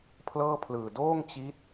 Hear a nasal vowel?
no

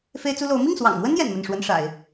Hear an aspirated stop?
no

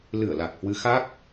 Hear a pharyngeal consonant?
no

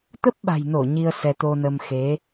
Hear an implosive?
yes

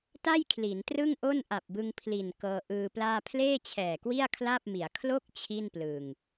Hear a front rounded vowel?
no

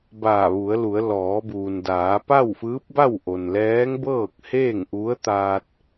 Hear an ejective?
no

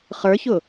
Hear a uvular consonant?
yes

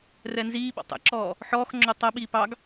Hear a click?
yes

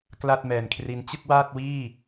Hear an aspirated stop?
yes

